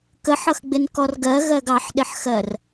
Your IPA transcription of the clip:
k ə ħ ʌ x ɡ͡b ɪ n k ɔ r ɡ ɜ ɣ ɜ ɡ ɑ ħ ɗ ɪ ħ x ɜ r

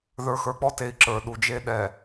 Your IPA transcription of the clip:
ð ə˞˨ x ə˞˨ k͡p ɔ˦ t e˨ i̯ ǁ ə˞˨ ɗ u˨ d͡ʒ e˦ ɗ ɛ˨

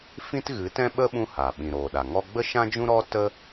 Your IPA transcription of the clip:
f ĩ˦ t ɣ ɨ˨˦ t ɛ̃˦ ɓ ə˦ ɓ ũ˦ h aː˨ ɓ ĩ˨ ɾ oː˨ ɗ a˨ ŋ ɔ˦ ɡ͡b ə˦ ʃ ã˦ d͡ʒ ũ˦ ɾ ɔ˦ t ə˦

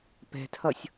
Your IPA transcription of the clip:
p ɛ̤ tʰ ʌ sʲ

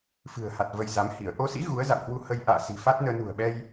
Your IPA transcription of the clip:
f ɨ̤˨˩ ə̯ h a˨˩ t̚ v ə˧ j z a˨˦ m h i˧˩ ə̯ ʔ o˧ s ḭ˧˥ ɣ u˨˦ ə̯ z a̰˧˨ w h w u˧ h ə˧ j ʔ a̰ː˧˨ s i̤˨˩ f a˦˥ t̚ n əː˧ n ṳ˨˩ ə̯ ɓ ɛ˧ j

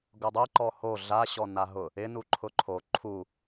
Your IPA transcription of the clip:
ɡ ʊ dˤ ɛ ǃ ɔ h o ɮ a ɕ ɔ n a ɦ ʊ | ɪ n u ǃʰ ʊ ǃʰ o ǃʰ u

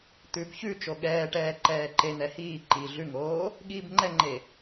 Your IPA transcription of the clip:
t̪ ʉ b ç ʉ t͡ʃ o ɠ ɛː ʈ ɛː ǃ ɛː ǃ e n̪ ɛ h iː ǃ i ɮ ʉ ŋ oː | ɠ iː b ŋ͡ǃ ɛ ŋ͡ǃ e

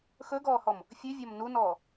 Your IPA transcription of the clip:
x ɵ ɡ ɔː h ɔ m | fʲ ʉ vʲ ɔ m n u n ɔː

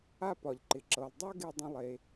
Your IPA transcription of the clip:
a˥ p ɒ˩ ʎ ǃ ɪ˩ ǁ ɤ˩ lˠ dˤ ɜ˥ ɡ e˧ dˤ ə̃˧ lˠ e˩

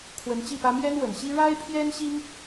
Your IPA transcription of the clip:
kʰ w ə˧˥ n t͡ɕ i˥˩ p ä˥ m j ɛ˥ n w ə˨˩ n ɕ i˥ ɻ a˥ ɪ̯ pʰ j ɛ˥ n ɕ i˥ ŋ

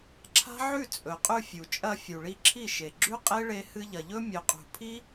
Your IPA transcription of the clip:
ǁʰ a̤˦ ʕ ʉ˦˨ t͡sʼ ɵ˨ qʼ ʉ˧ fʲ u˨ t͡ʃʼ ɐ˧ fʲ u˨ ɭ i˧ ǁʰ i˦˨ ʃ e˨ ɡ͡ǁ ʉ˦ qʼ e˦ ɭ e˧ h ɨ˧ ʎ ɐ˨ ʎ ɵ˦ mʲ ɵ˨ qʼ ṳ˨ pʰ i˦

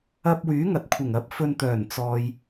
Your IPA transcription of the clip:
ɐ˧ p̚ w yː˨˥ ŋ ɐ˨ t̚ kʷʰ ɪ˨˩ ŋ ɐ˨˥ p̚ f ɵ˧ n t̪ œː˨˩ n t͡s ɔː˨ j

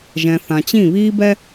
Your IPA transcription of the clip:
ʒ ɛ̃˨ θ ã˨ t͡ɕ ĩ˦˨ β iː˦ b ɛ˦

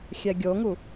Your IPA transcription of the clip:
xʲ ɛ ɡʲ o ŋ u

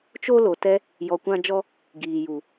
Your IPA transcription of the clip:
t͡ʃ o˦ l o˨ t ɛ˧ | j ɔ˧ kʷ ã˦ d͡ʒ ɔ˦ | ɡ iː˨ j u˨

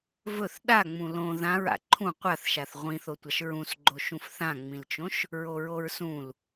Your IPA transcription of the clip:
v ɵ θ ɗ a ŋ͡m ũ l õ ð ã ɹ a̰ ǃʰ ũ qʷ a θ ʃ a θ ʁʷ ĩ θ o tʷ a ʃ ɹ ũ s ɡ͡ǃ o ʃ ũ f θ ã ŋ͡m ĩ l t͡ʃ õ ʃ | ɹ o ɹ o ɹ s ũ l

